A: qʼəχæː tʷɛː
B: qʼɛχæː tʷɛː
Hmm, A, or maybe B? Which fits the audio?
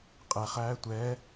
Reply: B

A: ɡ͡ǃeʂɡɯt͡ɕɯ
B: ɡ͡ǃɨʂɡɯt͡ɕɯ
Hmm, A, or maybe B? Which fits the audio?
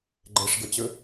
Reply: A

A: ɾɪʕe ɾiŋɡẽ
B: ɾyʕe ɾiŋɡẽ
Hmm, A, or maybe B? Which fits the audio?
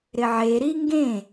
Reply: A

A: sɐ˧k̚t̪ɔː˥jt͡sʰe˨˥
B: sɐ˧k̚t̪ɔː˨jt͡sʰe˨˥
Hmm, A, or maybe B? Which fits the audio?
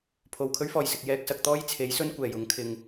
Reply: A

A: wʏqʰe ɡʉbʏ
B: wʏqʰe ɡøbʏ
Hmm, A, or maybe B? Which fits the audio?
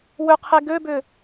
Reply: B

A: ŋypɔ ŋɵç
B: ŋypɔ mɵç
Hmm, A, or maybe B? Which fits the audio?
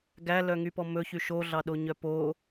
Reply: B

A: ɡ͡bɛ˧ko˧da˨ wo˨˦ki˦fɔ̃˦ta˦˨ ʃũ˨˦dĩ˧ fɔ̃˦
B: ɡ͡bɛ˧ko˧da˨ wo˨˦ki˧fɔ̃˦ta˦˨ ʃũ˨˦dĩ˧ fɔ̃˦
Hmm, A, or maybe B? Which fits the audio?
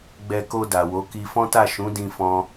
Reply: B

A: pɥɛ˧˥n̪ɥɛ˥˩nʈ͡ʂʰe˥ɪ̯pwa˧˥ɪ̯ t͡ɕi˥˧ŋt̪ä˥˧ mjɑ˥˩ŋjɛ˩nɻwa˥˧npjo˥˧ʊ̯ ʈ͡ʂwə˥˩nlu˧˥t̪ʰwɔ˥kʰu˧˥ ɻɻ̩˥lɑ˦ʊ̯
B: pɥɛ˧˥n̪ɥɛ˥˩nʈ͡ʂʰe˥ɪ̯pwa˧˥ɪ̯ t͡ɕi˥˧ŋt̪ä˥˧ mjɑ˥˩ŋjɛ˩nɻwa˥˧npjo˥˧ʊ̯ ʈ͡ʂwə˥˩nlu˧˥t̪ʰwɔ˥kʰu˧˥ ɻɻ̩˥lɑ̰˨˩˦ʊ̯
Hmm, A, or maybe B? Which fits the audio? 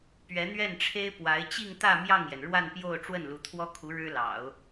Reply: B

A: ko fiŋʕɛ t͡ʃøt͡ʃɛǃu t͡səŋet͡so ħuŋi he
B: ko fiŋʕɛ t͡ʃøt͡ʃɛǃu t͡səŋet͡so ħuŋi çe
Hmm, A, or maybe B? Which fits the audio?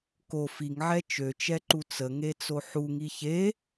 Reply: B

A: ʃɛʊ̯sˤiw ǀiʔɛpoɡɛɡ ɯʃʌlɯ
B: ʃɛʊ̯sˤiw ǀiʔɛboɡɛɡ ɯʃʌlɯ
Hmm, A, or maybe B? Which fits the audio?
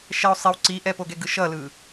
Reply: A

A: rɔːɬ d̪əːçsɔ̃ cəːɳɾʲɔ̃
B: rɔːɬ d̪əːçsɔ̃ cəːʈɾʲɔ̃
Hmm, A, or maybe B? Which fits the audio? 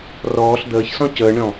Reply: A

